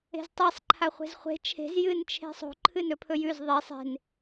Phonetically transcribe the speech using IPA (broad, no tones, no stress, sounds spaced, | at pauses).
e̤ z tˤ i sˤ ǃʰ a χʷ e̤ z χʷ e̤ t͡ʃʰ e̤ z j ɨ n t͡ʃʰ e̤ sˤ o̤ ǃʰ ɨ n ɵ pʰ ɵ j ʉ z ðˤ e sˤ e̤ n